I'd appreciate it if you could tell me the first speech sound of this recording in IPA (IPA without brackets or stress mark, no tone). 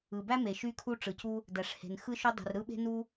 ɯ